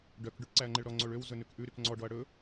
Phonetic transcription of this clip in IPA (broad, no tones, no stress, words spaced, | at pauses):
ɖœk ɖʉʈǀæɐ̯ŋ͡ǃeɭɾɔ ŋ͡ǀoɭøw zɵnʉkʔʉ ɾykŋ͡ǀɔ ɖɔɐ̯ɽɵ